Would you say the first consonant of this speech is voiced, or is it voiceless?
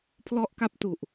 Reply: voiceless